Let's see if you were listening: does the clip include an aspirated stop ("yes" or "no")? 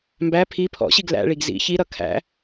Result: yes